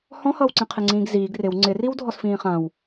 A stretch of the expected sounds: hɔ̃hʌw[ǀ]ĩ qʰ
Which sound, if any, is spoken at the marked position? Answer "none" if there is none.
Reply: ǀ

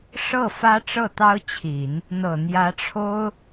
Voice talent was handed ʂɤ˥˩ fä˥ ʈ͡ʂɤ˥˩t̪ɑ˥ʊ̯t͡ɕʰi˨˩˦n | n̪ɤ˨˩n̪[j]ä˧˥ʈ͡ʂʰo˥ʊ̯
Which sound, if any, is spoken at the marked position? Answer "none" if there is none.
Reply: j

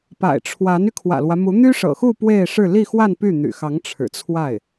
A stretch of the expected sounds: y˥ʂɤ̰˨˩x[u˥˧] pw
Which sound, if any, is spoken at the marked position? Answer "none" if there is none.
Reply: u˥˧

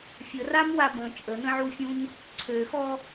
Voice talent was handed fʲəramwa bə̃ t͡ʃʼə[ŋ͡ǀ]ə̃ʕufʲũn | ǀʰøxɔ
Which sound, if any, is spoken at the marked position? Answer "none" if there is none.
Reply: n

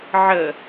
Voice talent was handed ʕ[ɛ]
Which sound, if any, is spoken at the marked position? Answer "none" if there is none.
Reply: ə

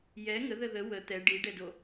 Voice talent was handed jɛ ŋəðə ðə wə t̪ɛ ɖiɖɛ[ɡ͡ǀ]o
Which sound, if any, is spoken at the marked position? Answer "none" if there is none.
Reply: d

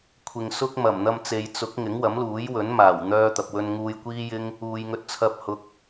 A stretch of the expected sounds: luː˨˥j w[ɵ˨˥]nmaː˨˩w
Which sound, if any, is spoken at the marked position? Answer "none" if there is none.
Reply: ɵ˨˥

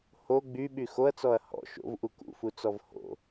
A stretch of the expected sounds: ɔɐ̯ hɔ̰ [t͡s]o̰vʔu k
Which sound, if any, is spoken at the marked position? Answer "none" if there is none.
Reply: ʃ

